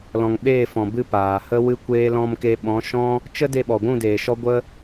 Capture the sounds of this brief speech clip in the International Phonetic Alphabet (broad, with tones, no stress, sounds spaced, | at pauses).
l ɔ̃˨ ŋ ɓ eː˦˨ f ɔ̃˨ b ɨ˧ p aː˨ h ə˦ w ɨ˧ kʷ eː˧ l ɔ̃˧ m k e˧ ɓ ɔ̃˨˦ ʃ ɔ̃˦ | t͡ʃ ə˦ d e˧ ɓ ɔ˨ ɡʷ ũ˦˨ d eː˨ ʃ ɔ˦ ɡʷ ə˦